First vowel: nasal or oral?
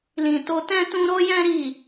nasal